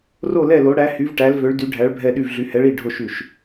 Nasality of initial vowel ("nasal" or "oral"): oral